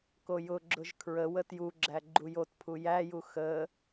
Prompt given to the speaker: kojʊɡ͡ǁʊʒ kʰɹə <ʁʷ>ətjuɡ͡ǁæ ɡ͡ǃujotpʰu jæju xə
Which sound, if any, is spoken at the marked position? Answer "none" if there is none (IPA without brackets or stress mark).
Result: w